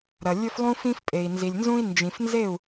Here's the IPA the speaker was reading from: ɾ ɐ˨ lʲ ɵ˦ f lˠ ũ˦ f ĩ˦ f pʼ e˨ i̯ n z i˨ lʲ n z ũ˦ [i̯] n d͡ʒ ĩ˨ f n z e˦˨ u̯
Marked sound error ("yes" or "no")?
no